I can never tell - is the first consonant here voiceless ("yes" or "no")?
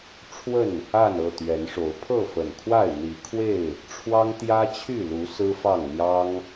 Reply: yes